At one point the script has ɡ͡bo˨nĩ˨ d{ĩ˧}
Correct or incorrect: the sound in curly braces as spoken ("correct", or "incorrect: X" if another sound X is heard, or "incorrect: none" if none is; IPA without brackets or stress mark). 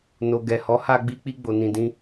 correct